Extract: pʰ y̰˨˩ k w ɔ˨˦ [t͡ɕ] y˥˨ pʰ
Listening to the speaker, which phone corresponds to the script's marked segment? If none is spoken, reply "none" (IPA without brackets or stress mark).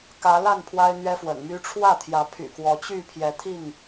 t͡ɕ